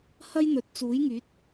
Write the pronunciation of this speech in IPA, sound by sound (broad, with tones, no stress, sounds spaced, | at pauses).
h ɐ˥ j n̪ ɵ˨ t̚ t͡s uː˨˥ j ŋ yː˨˥ t̚